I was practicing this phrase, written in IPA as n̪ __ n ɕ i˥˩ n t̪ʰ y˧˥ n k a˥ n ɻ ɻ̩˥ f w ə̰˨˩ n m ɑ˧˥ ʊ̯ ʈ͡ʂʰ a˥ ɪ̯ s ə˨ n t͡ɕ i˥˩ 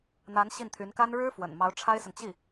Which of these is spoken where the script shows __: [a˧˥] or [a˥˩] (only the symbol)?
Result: a˧˥